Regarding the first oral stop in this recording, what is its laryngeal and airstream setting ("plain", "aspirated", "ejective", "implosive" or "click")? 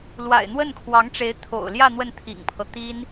aspirated